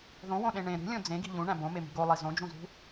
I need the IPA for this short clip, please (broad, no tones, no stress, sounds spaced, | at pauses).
ð õ w õ ɗ ẽ ɳ ẽ ɾ ṳ lʲ õ d͡z ẽ ɡ i̤ ʎ ũ ɳ æ̃ b õ m e m i̤ ɡ o lˠ i z õ d͡ʒ ũ z ṳ